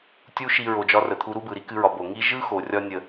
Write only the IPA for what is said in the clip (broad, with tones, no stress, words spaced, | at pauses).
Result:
tʲu˦ʃi˧ ɹo˨d͡ʒɒ˧ rə˨t̪ʰu˧ɾu˦bɯ˨ ɾi˦kɨ˧ɹɒ˨ bo˨ŋi˦ ʒɯ˦xo˨ rʲɒ˧nʲə˨